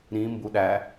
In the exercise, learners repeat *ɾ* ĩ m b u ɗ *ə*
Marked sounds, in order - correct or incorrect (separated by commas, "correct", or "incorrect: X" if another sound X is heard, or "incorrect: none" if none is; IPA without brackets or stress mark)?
correct, incorrect: æ